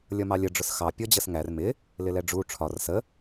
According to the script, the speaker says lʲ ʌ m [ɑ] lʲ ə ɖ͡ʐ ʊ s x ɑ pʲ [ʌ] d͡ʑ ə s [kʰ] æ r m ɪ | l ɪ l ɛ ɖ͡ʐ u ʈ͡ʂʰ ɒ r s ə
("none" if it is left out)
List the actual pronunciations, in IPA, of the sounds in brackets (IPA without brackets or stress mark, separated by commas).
ɑ, ɔ, ŋ